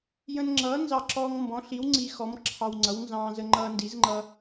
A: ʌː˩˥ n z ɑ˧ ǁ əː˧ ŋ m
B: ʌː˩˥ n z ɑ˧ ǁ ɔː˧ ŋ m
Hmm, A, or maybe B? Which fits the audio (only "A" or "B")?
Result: B